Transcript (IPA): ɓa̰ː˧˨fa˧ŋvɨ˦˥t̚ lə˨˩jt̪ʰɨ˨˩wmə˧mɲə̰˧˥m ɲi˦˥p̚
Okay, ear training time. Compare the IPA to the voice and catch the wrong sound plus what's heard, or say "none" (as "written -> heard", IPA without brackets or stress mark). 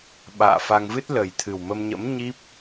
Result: none